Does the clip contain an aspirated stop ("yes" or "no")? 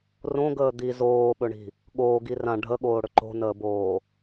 no